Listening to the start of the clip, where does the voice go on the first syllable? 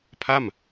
falling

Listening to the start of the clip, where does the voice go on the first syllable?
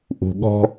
low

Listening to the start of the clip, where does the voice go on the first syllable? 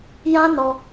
high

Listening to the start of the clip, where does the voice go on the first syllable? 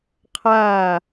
falling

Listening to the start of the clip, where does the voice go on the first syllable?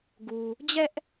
low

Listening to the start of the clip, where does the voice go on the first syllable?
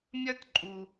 high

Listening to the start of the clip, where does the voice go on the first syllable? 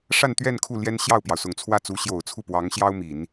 falling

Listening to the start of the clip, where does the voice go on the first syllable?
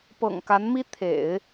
low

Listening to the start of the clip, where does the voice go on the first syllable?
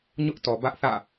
high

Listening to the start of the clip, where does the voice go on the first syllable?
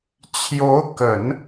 rising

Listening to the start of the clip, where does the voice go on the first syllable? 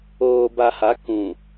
low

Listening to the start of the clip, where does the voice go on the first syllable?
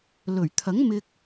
low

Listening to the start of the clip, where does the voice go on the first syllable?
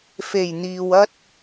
low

